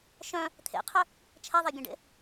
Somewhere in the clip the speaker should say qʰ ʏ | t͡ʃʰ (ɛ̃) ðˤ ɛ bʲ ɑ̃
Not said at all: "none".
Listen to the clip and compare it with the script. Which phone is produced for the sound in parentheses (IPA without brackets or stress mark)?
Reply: ɛ